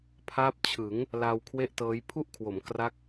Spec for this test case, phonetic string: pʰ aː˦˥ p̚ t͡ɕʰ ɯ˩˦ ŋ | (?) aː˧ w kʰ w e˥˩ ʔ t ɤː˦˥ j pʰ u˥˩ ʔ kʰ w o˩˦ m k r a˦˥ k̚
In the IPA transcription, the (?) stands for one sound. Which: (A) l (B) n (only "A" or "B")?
A